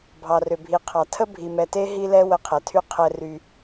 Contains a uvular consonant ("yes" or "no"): yes